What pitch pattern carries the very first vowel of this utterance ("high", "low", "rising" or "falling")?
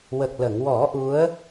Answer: low